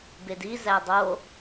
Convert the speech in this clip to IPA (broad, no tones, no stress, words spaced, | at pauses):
bediz ædˤo